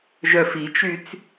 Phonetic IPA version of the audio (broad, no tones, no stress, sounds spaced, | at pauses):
ʒ œ f i t͡ʃ y t͡s